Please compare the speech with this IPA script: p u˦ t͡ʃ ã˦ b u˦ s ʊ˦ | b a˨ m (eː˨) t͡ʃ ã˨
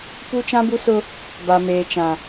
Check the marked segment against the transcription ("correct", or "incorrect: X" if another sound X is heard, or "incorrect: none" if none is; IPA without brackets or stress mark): correct